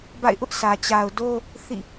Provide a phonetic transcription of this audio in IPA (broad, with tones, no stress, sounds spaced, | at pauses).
b a̰˦˨ ɪ̯ ʔ ʊ˦ ʔ s ä˨ t͡ɕ a˨ ʊ̯ d o˦ | θ ḭ˦˨